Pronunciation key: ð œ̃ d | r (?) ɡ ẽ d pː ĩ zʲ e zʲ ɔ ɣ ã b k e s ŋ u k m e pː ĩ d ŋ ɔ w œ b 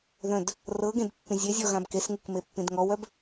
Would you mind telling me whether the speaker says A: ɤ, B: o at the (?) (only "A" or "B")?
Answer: A